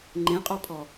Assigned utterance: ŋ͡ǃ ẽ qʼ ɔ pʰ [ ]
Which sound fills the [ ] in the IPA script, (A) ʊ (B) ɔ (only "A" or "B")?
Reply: B